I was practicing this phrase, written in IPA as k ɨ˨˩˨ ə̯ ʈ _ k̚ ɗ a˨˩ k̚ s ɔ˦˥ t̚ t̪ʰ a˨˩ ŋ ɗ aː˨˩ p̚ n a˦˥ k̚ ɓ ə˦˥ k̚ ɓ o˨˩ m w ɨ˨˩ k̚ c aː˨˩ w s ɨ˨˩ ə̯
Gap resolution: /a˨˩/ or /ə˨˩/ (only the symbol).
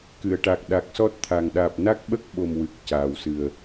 a˨˩